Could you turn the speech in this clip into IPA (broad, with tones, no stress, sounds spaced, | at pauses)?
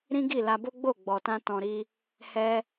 ɾ ĩ˦ ɡ i˦˨ l a˧ b o˦ ɡ͡b o˦˨ ɡ͡b ɔ˨ t ã˧ t ɔ̃˨ ɾ i˧ | h ɛ˦